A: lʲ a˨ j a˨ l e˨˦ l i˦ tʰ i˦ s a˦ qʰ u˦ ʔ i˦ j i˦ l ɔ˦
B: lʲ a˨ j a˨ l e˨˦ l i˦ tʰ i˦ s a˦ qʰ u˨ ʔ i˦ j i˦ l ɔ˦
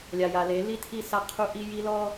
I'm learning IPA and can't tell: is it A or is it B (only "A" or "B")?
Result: A